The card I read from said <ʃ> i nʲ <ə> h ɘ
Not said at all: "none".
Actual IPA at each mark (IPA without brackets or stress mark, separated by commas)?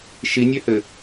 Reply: ʃ, œ